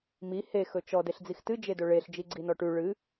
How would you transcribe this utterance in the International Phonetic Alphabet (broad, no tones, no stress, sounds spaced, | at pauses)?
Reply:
m i h e x ɵ t͡ʃ ɔ d e ɬ d͡z i x t ɨ d͡ʒ e d ɵ ɭ e ɬ d͡ʒ i ɡ͡ǀ i n ɔ ʈ ʉ ɭ ɨ